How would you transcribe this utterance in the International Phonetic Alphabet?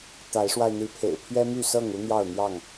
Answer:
t̪a˨˦ɪ̯ʂwa˧ɪ̯n̪i˨˦pʰḛ˨˩ɪ̯ pʰɥɛ˦my˥˨sɤ˥˨ŋ u˦n̪jɑ˥˨ʊ̯n̪jɑ˥˨ŋ

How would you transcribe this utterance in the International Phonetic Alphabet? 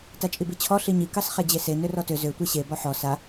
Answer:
tat͡ʃʼibit͡ɕʰɔ ɬiɲi kɑsχɛd͡ʑese nørɔtø zø tʷeɕe bɔħɔ sa

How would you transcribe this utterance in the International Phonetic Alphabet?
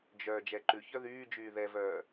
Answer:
d͡ʒœ d͡ʒɛǃʉçœ ðyːd͡ʒyː ðɛvœː

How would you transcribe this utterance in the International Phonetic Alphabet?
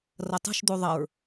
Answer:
rɐtˤṳʃd̪u ðˤɐɹ

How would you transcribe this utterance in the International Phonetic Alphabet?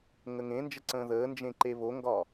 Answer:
ŋəŋẽnd͡ʒə ǀə̃ːðəːnd͡ʒẽ ǃeβoŋɡɒː

